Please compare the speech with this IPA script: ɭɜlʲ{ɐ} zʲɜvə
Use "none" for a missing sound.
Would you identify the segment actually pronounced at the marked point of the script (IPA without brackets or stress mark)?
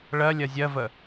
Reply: ɐ